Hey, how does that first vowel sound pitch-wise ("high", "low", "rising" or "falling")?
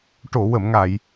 low